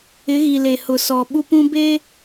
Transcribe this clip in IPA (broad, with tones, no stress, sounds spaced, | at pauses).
ɪ˨˦ ɣ i˨ l e˨ h ʊ˨ s ɔ˨ ɓ u˦ p ũ˦ b eː˦